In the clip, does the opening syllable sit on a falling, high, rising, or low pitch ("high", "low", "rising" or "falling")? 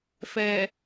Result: low